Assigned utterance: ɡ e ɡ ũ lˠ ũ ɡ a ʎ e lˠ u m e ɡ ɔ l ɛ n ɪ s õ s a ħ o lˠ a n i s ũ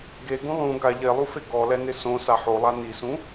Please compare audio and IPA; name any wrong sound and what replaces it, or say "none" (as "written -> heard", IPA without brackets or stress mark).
m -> f